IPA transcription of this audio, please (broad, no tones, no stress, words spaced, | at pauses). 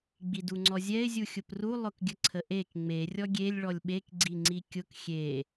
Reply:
ɡ͡biduŋ͡ǀɔzʲɛɪ̯ zʲuxʲʊpru lˠʊkɡʲəǀʰəʔek ŋ͡me rʲɔɡʲelʲ ɭɔlʲɓek ɡ͡ǀiŋ͡ǀikʲʊk xʲe